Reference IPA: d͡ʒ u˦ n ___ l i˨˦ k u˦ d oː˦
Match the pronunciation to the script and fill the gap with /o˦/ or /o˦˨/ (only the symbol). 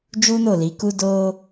o˦˨